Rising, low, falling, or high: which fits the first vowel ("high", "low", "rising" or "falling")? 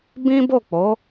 high